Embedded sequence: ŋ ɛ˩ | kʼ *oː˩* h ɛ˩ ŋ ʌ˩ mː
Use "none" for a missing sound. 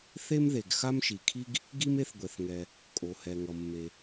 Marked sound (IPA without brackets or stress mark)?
o˩